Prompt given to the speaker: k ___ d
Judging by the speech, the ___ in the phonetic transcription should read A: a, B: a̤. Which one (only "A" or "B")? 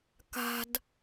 B